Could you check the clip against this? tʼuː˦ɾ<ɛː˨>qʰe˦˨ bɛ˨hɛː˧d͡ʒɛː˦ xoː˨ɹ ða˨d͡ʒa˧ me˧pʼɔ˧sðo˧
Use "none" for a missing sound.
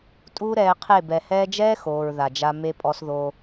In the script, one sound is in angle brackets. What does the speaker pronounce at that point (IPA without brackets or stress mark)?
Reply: ɛː˧